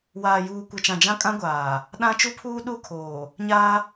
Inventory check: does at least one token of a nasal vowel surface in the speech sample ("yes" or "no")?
yes